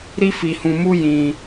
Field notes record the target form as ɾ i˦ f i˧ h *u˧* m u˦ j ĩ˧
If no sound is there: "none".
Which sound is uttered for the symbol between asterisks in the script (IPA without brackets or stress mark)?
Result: ũ˧